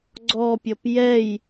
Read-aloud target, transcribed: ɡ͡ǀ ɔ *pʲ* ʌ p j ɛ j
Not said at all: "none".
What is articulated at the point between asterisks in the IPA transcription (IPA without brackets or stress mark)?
pʲ